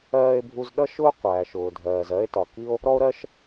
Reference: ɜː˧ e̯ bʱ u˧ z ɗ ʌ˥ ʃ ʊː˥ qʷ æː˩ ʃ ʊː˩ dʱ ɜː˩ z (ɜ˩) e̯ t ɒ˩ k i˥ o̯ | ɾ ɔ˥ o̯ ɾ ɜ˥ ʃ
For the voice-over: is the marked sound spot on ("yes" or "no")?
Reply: no